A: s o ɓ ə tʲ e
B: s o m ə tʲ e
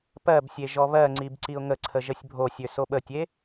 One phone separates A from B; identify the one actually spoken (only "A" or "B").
A